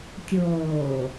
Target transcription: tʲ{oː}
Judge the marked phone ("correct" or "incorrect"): correct